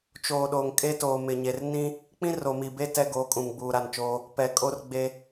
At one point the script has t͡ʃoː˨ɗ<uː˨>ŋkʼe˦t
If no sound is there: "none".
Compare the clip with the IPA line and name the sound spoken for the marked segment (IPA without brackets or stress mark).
oː˨